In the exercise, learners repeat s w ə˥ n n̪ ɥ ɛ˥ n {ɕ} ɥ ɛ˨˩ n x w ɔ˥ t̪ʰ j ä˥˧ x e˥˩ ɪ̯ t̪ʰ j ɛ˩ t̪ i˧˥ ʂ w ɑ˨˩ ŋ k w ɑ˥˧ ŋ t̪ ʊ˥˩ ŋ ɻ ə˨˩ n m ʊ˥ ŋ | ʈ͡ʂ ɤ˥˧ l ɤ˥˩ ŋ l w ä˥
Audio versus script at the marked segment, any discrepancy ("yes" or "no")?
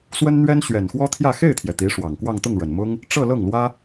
no